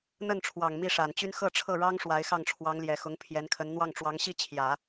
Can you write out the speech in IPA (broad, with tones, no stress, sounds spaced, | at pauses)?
n̪ ə˥˩ n ʈ͡ʂʰ w ɑ˨˩ ŋ m i˥˩ ʂ a˨˩ n t͡ɕ y˥ n x ɤ˥˧ ʈ͡ʂʰ ɤ˥˩ ɻ ɑ˥ ŋ ʂ w a˧˥ ɪ̯ x ɑ˥˩ ŋ ʈ͡ʂʰ w ɑ˧˥ ŋ l j ɛ˨˩ x ʊ˧˥ ŋ pʰ j ɛ˧˥ n kʰ ə˧˥ n n̪ w ɑ˥˩ ŋ ʈ͡ʂ w ɑ˧˥ ŋ ɕ i˥ t͡ɕʰ j ä˨˩˦